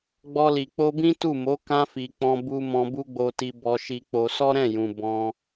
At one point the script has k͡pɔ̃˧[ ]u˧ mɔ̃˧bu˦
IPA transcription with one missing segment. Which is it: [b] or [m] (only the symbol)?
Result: b